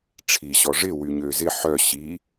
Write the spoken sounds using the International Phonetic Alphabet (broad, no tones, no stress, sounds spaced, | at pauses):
ʈ͡ʂʰ i ɕ ɔ ʐ ɪ w y ɲ ø z ɪ ħ œ ɕ i